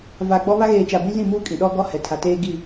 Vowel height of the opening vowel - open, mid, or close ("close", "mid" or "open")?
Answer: open